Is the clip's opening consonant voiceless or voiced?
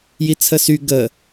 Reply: voiced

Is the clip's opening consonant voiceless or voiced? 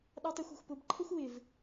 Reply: voiced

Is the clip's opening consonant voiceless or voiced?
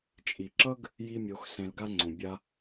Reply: voiceless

